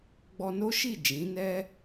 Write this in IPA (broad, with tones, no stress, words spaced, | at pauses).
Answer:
ɡ͡bɔ˧no˦ʃi˦˨ d͡ʒĩ˨˦nɛ˦